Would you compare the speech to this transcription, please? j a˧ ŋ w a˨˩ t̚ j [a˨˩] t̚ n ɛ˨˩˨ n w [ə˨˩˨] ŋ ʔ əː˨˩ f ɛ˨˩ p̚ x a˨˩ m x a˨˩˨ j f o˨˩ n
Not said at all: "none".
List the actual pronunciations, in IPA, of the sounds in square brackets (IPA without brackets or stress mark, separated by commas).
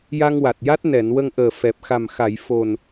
a˦˥, ə˧